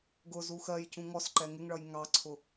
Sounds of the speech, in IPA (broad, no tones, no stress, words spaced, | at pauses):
ɡʊ zuxɜjcũ ŋɔsǃɛ ŋɪŋɭʌj ŋɑǀʰʊ